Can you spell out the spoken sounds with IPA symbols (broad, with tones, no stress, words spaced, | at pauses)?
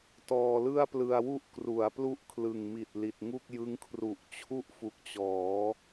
tɔː˧lɯ˥˩a̯plɯ˧a̯wu˥˩ʔ kru˩˦a̯ plu˥˩ʔkʰlɯ˨˩ŋmi˨˩t̚ li˨˩t̚ŋu˥˩k̚jɯ˦˥ŋ kʰru˨˩ʔt͡ɕʰu˥˩ʔfu˨˩k̚t͡ɕɔː˩˦